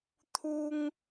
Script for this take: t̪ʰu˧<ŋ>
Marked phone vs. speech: correct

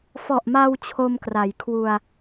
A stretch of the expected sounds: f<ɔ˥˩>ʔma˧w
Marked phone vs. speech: incorrect: ɔ˨˩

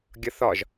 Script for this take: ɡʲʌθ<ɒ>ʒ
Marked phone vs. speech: correct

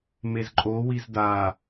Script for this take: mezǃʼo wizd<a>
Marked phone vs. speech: correct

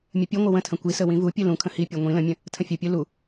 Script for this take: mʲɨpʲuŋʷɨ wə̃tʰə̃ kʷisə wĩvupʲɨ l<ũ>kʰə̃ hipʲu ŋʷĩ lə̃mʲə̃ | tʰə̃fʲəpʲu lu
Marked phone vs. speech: correct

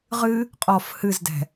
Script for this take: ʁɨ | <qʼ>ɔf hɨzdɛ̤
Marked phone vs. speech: correct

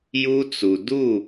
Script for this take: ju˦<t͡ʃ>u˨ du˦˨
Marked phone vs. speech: incorrect: t͡s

